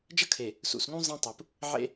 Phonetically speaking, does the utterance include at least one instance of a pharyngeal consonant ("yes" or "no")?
yes